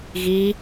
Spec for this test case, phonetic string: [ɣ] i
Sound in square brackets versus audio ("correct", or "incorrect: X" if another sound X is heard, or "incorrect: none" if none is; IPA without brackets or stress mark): correct